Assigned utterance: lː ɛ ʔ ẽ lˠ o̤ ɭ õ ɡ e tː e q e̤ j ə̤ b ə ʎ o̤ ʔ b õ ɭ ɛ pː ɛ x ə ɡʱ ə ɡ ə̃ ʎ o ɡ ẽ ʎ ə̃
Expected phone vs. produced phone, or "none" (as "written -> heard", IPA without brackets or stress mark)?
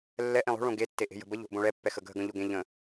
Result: q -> ʔ